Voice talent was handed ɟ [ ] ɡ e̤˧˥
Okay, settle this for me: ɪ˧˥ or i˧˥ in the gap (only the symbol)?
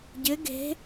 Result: ɪ˧˥